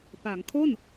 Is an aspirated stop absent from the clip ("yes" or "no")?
no